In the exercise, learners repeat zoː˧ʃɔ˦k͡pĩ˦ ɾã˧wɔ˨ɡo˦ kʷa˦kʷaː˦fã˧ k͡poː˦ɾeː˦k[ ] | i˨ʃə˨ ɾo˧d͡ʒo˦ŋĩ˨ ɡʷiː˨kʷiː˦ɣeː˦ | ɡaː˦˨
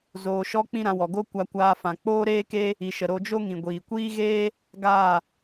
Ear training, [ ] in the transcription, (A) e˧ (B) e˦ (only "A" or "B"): B